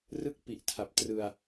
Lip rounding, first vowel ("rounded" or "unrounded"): unrounded